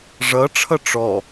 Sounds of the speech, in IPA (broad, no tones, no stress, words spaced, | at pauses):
ʐʌʈ͡ʂʰʌ ʈ͡ʂɔ